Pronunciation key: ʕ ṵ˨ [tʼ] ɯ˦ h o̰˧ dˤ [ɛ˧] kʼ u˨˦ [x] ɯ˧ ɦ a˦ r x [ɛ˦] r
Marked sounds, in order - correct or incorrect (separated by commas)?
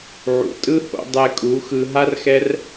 correct, correct, correct, correct